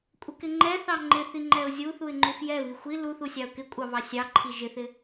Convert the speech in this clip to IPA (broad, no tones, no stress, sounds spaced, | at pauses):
kʷʼ ɪ k ɪ ŋ͡ǃ ɛ θ ɑ ŋ͡ǃ ɪ θ i ŋ͡ǃ ɛ ʊ̯ zʲ u θ u ɪ̯ ŋ͡ǃ u f j ɛ β i xʷ i l u θ u sʲ ɑ ʊ̯ k ɪ kʷʼ ɑ β ɑ sʲ ɑ ǃʰ i ʒ ɪ θ ɪ